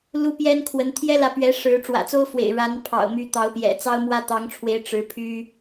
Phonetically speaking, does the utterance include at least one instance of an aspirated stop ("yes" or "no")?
yes